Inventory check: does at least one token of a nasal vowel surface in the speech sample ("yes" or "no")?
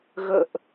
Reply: no